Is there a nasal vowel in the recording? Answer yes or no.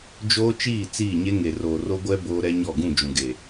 yes